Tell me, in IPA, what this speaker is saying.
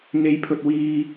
ŋe˨˧jpʰɵ˨t̚ wiː˧

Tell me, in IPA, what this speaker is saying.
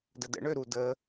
dədə̰ɳø ɾu də

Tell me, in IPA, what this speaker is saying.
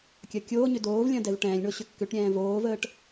kʲɐkʲoːɲʏ doːvlʲɐ̃ dɛvʈɛ̃ːlʲɳo ɕʏkːʏʈɾʲɛ̃ː voːvəːʈ

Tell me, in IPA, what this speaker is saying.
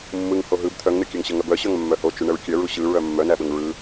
mːɯŋ hoɦɯb t̪ʰœŋnɯkʲœŋ ɕəŋœbœɕœŋ mːœhot͡ʃu ɳəɹkʲœɹu ɕɯ ɹœmːœnæɓəŋ ɹɯ

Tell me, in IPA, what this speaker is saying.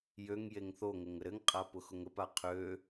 jøŋ jeŋθoŋɘŋ əɾɘŋqʼa pʊxʊŋəpa qʰø

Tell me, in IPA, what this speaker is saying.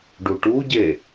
ɖuʈuɟe

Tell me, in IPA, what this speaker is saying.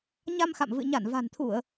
ɲa˧mxa̰˧˨mvɨ̰˧˨ ɲa˧˩nva̤˨˩nt̪ʰu˧˩˨ə̯

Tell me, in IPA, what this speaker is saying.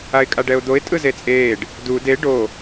aɪ̯kʼaɖɛʊ̯d̪oɪ̯ tʼɯzet͡sʼeːɖ | du de ɖo

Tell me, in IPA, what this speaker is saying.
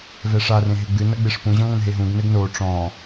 vɛʂarẽ ɦeɡ͡bɨnɐ ɡ͡beʂpũʑɔ̃ ŋɐ̃nɦeɦũɡnɘɡ no ʈ͡ʂɔ̃

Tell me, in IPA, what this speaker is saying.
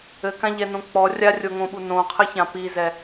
ɘkãʎɛnõ k͡pɔ rʲarʲoŋõɓu nõqʰɘçã pizɛ

